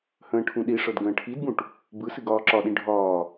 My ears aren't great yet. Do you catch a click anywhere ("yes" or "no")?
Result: yes